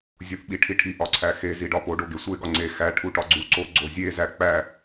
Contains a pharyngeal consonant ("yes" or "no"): no